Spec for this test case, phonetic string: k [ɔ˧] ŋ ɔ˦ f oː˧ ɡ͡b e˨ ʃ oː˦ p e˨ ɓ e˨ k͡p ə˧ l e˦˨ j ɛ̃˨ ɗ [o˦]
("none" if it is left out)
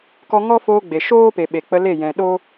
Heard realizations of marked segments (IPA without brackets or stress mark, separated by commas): ɔ˧, o˦